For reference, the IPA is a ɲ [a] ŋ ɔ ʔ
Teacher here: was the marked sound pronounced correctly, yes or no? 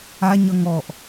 no